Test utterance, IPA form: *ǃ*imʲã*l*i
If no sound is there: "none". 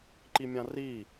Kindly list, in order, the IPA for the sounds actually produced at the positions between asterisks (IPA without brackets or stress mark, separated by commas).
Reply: ǃ, r